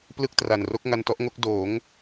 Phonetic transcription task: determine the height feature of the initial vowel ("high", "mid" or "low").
high